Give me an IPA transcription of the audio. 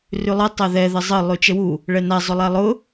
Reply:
r ʉ lˠ ə tˤ a ð ɛ ð ə zˤ ə lˠ ʉ t͡ʃ ə w u | ɭ ɛ n a zˤ ʊ lˠ a lˠ ʊ

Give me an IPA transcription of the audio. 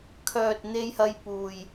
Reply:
kʰ œː˨ t̚ n̪ e˧ j h ɐ˧ j p uː˨ j

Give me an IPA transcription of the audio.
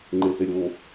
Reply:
ŋ͡ǃ e θ e ɾʲ o

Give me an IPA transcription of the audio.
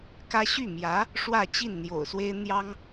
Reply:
k ä˥ ɕ y˥˩ m j ä˧˥ | ʂ w ä˥˧ t͡ɕ i˥˩ n n̪ j o̰˨˩ ʊ̯ s w e˥ ɪ̯ n̪ j ɑ˥ ŋ

